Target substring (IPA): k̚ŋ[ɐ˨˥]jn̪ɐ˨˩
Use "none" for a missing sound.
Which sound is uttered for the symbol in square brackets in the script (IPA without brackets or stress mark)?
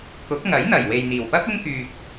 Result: ɐ˨˥